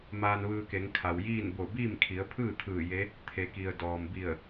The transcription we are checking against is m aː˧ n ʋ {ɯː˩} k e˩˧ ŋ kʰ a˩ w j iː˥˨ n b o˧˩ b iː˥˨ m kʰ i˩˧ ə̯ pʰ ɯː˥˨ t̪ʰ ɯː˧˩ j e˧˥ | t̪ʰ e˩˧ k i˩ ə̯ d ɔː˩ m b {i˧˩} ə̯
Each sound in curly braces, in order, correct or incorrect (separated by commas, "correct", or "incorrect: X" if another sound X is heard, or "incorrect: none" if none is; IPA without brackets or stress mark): incorrect: ɯː˧, correct